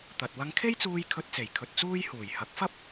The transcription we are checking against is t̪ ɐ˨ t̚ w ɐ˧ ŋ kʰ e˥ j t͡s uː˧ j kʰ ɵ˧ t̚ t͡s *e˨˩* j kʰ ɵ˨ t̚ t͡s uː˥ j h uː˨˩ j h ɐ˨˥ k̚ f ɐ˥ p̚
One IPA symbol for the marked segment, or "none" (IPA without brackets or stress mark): e˨˩